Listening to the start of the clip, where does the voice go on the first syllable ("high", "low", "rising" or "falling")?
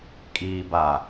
low